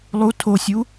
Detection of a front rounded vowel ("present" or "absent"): absent